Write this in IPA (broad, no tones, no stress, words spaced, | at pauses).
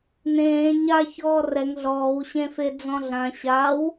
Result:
nẽː ɲa çɔːrɛŋ ɮɔːw ɕẽfed͡zɔ̃ɮã ɕaw